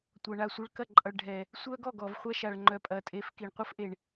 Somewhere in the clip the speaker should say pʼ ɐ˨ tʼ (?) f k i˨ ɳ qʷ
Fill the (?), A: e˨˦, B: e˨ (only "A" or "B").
A